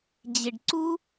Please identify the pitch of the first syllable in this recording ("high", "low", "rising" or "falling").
low